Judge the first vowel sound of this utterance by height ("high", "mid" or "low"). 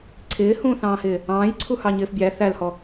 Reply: high